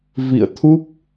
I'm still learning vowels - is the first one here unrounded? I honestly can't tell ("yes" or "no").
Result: yes